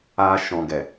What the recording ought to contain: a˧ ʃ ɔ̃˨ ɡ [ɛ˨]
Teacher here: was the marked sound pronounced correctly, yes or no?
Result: yes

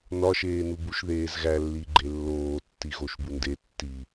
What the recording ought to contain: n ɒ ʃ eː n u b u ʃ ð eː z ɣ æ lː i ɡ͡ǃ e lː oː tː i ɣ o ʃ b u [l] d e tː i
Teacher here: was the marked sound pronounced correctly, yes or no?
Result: no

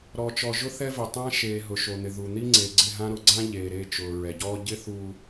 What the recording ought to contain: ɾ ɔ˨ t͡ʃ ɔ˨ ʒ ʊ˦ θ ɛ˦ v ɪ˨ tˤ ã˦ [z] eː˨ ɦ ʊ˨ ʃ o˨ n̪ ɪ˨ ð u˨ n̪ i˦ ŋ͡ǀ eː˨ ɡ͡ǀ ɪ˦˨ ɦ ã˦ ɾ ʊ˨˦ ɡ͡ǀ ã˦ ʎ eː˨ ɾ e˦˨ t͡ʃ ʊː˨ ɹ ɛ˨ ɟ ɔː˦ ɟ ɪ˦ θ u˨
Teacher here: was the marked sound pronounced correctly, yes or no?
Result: no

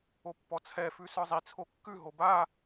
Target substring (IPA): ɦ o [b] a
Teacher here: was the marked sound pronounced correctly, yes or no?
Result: yes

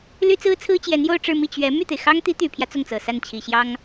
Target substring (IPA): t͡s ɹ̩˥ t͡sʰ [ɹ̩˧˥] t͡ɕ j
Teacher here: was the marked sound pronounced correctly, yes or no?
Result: no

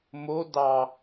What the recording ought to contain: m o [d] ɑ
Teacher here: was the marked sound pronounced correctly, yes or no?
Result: yes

